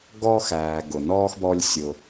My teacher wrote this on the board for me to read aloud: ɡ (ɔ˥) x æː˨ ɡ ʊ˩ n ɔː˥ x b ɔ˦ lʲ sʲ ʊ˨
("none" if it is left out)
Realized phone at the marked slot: ɔ˥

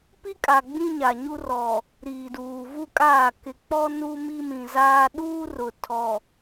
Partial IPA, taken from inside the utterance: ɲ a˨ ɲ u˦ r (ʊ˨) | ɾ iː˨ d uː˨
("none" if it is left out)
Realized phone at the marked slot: ɔ˨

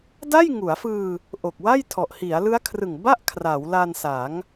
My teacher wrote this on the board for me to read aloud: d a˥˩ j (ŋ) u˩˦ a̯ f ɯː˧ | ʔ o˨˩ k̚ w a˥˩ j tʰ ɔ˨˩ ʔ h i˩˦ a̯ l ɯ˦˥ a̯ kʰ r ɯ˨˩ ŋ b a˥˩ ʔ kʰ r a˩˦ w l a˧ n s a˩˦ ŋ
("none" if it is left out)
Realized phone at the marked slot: ŋ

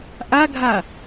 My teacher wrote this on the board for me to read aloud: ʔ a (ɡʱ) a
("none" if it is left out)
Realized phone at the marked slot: ɡʱ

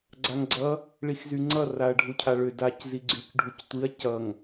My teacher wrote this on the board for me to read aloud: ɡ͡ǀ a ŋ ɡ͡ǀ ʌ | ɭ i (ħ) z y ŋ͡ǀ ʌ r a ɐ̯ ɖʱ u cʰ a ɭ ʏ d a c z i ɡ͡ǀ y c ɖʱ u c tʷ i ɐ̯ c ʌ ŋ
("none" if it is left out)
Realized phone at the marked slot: x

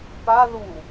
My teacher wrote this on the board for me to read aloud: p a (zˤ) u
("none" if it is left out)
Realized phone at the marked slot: ð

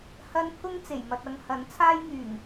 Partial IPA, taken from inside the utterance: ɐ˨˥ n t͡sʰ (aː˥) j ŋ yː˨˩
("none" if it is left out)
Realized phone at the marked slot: aː˥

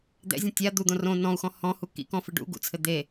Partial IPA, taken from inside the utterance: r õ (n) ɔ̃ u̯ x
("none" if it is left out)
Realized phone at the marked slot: n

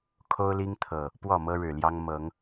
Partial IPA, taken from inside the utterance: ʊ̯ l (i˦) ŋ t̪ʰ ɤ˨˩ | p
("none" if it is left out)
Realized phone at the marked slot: i˦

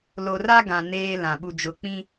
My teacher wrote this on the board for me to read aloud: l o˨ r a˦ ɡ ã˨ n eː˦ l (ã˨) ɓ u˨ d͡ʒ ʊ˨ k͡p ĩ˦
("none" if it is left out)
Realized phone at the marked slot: ã˨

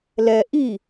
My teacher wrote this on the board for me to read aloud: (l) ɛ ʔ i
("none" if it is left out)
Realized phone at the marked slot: l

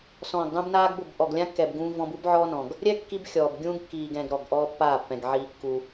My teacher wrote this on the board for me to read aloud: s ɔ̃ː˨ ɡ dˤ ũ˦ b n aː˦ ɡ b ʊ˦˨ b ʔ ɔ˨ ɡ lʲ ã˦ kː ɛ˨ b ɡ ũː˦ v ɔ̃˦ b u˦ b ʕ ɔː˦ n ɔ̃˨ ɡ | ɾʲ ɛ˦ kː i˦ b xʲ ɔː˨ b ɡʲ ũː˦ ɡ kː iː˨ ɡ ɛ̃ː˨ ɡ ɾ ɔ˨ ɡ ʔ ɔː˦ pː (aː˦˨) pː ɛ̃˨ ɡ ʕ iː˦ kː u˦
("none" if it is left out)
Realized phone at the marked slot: aː˦˨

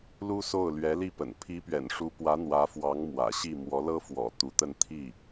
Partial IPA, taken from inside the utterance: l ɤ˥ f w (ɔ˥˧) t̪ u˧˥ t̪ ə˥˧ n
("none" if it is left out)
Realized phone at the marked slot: ɔ̰˨˩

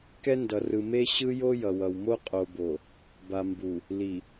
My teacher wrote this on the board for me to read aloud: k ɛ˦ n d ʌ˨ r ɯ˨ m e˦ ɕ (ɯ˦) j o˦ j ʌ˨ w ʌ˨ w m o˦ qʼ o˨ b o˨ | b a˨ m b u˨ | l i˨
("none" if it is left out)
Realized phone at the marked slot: ɯ˦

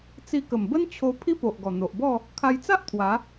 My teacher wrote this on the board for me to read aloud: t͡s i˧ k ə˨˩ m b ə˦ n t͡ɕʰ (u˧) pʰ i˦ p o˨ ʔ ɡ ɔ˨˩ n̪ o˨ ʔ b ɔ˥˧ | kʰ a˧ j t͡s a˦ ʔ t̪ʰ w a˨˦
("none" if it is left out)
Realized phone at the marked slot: o˧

